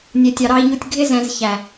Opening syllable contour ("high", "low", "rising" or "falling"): low